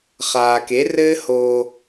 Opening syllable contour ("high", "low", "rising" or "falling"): low